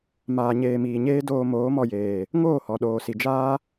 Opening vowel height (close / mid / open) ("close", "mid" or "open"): open